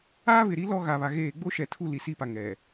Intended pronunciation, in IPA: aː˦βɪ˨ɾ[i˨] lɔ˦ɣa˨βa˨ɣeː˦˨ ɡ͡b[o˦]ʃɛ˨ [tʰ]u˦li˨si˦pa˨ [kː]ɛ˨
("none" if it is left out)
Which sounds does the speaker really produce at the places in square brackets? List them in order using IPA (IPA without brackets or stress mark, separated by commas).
i˦, o˦, tʰ, ŋ